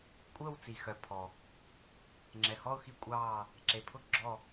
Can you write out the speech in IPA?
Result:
kʷʼ əː˥˧ w t͡s i˨ x œ˨ pʰ ɔ˨ | ŋ͡ǁ ɛ˨ h ɔ˥˧ ʊ̯ x i˥˧ kʷʼ ɑː˥˧ | ǁ e˨ pʰ ʊ˥˧ ɡ͡ǁ ɔ˥˧

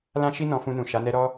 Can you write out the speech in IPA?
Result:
l ã˦ ʃ i˦ n ɔ̃˧ f ũ˧ n ũ˨ ʃ a˨˦ n ɛ˦ ɾ ɔ˦

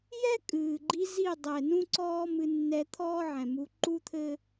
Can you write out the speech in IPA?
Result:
j ɛ˦ kʼ ɨː˨ ɡ͡ǃ i˧ z i˦˨ dˤ ɛ˨ n ũ˦ ǀ ɔː˦ m ɨ˧ nː ɛ˧ t̪ʰ ɔː˦ ʕ ɛ̃˨ m u˧ ǃ u˦ t̪ʰ ɘ˦

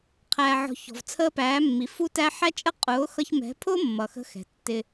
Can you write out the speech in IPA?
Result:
qʰ æː˨ ʕ ɔ̤˨ ç ɔ̤˨ v t͡sʰ əː˦ p æː˨˦ mː i˨ f u˦ t æ˦ ħ æ˦ t͡ʃʼ ə˦ qʼ ʊː˨˦ x ʌ˧ ç m ɛ̤˨˦ pʰ ʊː˦ mː ʌ˨ x ə̤˦ x ɛ̤˨ tː ɪ˧

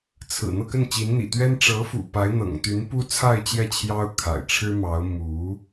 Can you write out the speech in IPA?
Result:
t͡sʰ ɹ̩˨˩ n̪ ɤ˥˧ k ə˥˩ n t͡ɕ i˧˥ n n̪ ḭ˨˩ t̪ ɥ ɛ˥ n ʈ͡ʂ ɤ˧˥ f ṵ˨˩ p a˧˥ ɪ̯ n̪ ɤ̰˨˩ ŋ t̪ y˧˥ n p u˥ t͡sʰ a˥˧ ɪ̯ t͡ɕ j ɛ˥˩ t͡ɕʰ j ɑ˥ ʊ̯ kʰ a̰˨˩ ɪ̯ ʈ͡ʂʰ ɻ̩˥ m ɑ˧˥ ʊ̯ m u˧˥

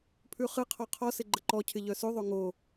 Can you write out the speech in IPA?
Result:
pʰ ʉ χ ɨ qʰ ɔ qʰ ɔ s ɪ ɡ͡ǃ ə ǃ ɔ cʰ ɪ ʎ œ s ʉ ðˤ o ŋ o

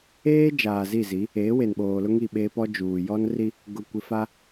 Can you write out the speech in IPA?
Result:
eː˦ d͡ʒ aː˨ z i˦˨ z i˨˦ | eː˨˦ w e˨ n ɓ oː˨ l ʊ˦ ŋ i˦˨ ɓ eː˦ p ɔ˦ d͡ʒ uː˨ j ɔ˦ n r i˦ | ɡ ʊ˨ kʷ ɪ˨ f a˦

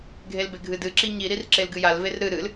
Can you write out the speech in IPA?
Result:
ɡʱ e l b e ɡʱ ɨ d ɨ ǁ i ɲ i ɾ i r ǁ e l ɡ ɨ j a l v e r ɾ ɨ ɾ ɨ l

